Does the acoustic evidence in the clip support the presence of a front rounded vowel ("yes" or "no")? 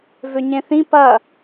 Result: yes